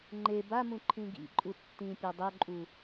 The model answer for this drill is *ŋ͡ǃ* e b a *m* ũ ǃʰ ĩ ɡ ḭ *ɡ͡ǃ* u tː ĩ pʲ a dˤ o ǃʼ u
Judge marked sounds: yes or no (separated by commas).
yes, yes, no